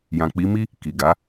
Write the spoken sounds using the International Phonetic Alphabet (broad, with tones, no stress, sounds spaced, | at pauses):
j ã˨ k͡p i˨˦ m i˦ | k i˨ ɡ a˨˦